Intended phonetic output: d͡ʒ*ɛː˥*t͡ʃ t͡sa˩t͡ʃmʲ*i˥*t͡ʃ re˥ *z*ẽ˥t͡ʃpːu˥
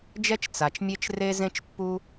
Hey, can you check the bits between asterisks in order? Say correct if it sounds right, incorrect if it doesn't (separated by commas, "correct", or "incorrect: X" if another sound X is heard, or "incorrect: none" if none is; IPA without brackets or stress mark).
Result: incorrect: ɛ˥, incorrect: e˥, correct